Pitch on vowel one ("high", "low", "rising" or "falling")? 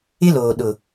high